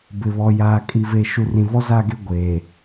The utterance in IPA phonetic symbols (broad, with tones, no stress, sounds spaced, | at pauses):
b ɪ˨ β ɔ˨ j aː˨ kʼ i˨ v e˨ ʃ u˨ r ĩ˨ v ɔ˦ z a˦˨ ɡ e˦ ɡʷ eː˨